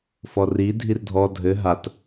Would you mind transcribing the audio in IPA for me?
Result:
fɔri dʱirdʱɔ dʱɘ ɦat

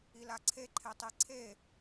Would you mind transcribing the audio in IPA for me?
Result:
ilaǀʰe ǃʰetˤeǀʰe

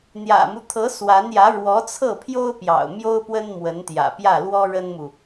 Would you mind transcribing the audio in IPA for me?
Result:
n̪jä̰˨˩mu˦t̪ʰɤ˧˥ swa˧˥njä˧˥ ɻwɔ˧˥t͡sʰɤ˥˩pʰjo˥ʊ̯ pjɑ̰˨˩ʊ̯mjo˥ʊ̯ pwə˥nmwə˧˥nt̪jä̰˨˩ pjä˥˩lwɔ˥ɻə˥nmu˨

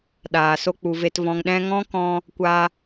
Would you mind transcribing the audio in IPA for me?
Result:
ɗaː˨so˦k͡pu˨ve˧t vɔ̃˧ŋɗɛ̃˦ ŋɔ̃˦kɔ̃˧ | kʷa˧

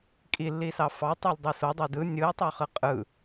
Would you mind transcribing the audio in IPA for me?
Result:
kʼilːisɑ fɑtˤulʲdˤi sodˤe dɯ nʲɯɪ̯tˤøχɯ qʼɯ

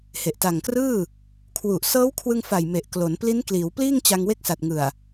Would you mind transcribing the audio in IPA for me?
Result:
he˨˩ʔta˨˩ŋkrɯː˥˩ | kʰwu˨˩ʔsɤː˦˥wkʰwɯ˧ŋfa˨˩j me˨˩ʔklo˩˦n pli˦˥nkliː˩˦wpliː˥˩ŋ t͡ɕa˧ŋwe˦˥k̚sa˨˩t̚ ŋɯ˨˩a̯

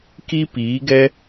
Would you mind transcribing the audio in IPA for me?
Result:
ki˦piː˨˦ɡɛ˦

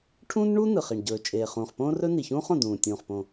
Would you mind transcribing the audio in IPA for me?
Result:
ʈʰũː˥nɳu˥ nɯ˩χ i˩ɳ ɟɵː˩t͡ʃʼeː˩χũː˩χ põː˥rɵ˥ni˩çũː˥χ õ˩dũː˩tʲũː˩χpõ˩

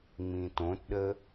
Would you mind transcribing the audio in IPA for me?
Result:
ŋ͡mĩtõtɗə

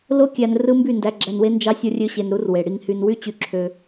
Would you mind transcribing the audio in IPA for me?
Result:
lo˦kʲæ˧n rɯ˦mby˦˨ndæ˧ ɡ͡ǁæ˧nwe˦nd͡ʒɑ˦ sʲo˦rʲø˦ɕe˧nɾu˦r we˨ɽi˧ŋhy˧n wy˦t͡ɕy˧ǁʰø˧

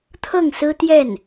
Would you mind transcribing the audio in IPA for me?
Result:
t̪ʰɤ˥˩ŋsɹ̩˥t̪jɛ˥˩n

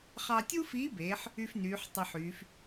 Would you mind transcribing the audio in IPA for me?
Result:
χɑ˧tʲu˥fiː˧˥beː˩˧ħ | y˧f nyː˩˧ħtˤɑ˧ħyː˩˧f

